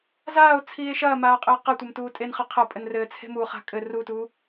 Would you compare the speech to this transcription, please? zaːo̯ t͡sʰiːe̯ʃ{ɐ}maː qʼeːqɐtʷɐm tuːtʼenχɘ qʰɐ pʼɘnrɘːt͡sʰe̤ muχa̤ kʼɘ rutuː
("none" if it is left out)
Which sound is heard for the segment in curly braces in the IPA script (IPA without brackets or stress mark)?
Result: ɐː